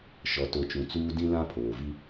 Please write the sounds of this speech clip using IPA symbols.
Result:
ʃ ɔ˨ t o˨ t͡ʃ ũ˨ t͡s uː˦ d ĩ˦ l ã˦ pʰ oː˨ v i˦

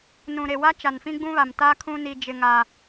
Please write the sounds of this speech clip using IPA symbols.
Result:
n ũ˨ ɾ e˨ w a˦ t͡ʃ a˨ n f ĩ˦ ɡ͡b ũ˦ β a˨ m t a˦ kʰ ũ˦ n i˦ d͡ʒ ɪ˦ ŋ a˦

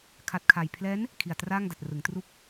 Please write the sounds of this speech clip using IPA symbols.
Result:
kʰ a˦˥ t̚ kʰ a˧ j pʰ l ɛː˦˥ n | kʰ i˨˩ a̯ t r aː˥˩ ŋ d a˨˩ t̚ r ɯ˩˦ ŋ t r u˥˩ k̚

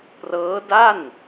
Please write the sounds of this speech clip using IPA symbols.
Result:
p r ɤː˦˥ d a˥˩ n

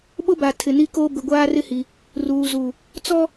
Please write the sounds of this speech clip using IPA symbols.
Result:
ɓ ʊ˦ b a˨ tʰ ɪ˨ n i˦ k oː˦ b ɪ˨ ɡʷ aː˦ r ɪ˦ h i˨ | r uː˨ z u˨ | t͡s ɔ˦

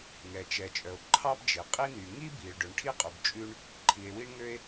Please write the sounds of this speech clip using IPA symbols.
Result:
ŋ ɛ˩ t͡ʃ ɛ˩ t͡ʃʼ œ˩ o̯ ǃʰ ɑ˥ b d͡ʒ e˩ qʼ i˥ n y˩ ŋ i˥ b i˩ ɭ ɖ ɵ˩ ɳ ʈʰ i˥ qʼ ʉ˩ b t͡ʃʼ ʉ˥ ɳ | ǃʰ i˩ e̯ w i˥ ɳ ŋ ø˥ e̯

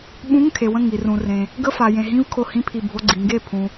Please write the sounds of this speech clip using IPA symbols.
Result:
ɓ ũ˧˥˧ ŋ kʰ e˩ w ə̃˧˩ ŋ i˩ r ũ˩ r ẽ˩ | ɡ ə˧˥˧ f a˩ j ẽ˩ ɦ ĩ˧˥˧ v kʰ o˧˩ h ĩ˧˥˧ pʰ i˧˩ bʱ o˧˥˧ ɡ͡ǀ i˩ ŋ ɡ e˧˩ pʰ ũ˩

